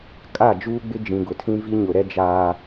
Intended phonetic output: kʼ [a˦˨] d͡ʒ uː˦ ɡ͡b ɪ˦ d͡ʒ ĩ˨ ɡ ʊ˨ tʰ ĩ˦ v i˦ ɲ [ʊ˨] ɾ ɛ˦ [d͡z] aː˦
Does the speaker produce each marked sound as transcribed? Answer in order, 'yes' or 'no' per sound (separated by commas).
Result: yes, yes, no